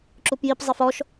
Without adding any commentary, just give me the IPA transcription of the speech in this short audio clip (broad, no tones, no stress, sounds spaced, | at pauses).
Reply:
ǁ u p j i p zˤ i f ɔ ʃ